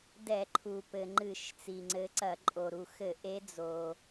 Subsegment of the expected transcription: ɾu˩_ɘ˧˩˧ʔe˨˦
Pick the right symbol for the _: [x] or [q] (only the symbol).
x